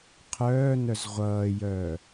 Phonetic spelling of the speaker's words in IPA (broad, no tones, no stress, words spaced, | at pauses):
qʰœːnœz ʁʷʌːjœː